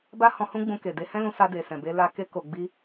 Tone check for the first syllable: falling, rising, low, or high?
high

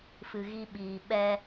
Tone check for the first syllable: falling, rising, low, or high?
low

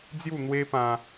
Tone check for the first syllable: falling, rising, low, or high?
falling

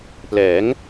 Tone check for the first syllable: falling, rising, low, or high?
rising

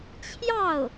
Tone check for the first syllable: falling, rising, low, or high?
falling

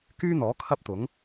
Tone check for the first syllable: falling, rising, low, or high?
high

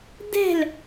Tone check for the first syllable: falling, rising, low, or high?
falling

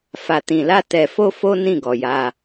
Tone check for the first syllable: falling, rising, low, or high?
low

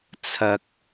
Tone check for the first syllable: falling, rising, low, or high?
high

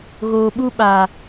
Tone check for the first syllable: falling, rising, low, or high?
low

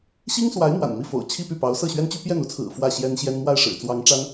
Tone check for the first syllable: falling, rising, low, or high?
high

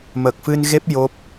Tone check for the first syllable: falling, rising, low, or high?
low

